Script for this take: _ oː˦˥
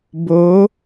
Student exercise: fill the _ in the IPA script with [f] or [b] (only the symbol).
b